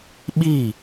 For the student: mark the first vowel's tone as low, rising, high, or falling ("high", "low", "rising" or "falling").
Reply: falling